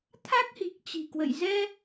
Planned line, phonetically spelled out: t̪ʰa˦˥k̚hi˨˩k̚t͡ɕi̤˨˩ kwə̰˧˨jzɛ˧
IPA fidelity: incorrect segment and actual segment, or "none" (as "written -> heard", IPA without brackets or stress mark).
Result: none